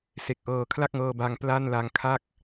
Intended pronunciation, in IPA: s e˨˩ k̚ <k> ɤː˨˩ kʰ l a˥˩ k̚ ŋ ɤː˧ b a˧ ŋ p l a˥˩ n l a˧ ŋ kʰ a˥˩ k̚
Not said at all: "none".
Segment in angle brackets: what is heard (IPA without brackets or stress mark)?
ʔ